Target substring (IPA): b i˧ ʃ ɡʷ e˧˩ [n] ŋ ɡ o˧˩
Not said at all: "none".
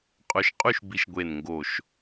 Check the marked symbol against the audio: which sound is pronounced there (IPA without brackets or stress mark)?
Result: n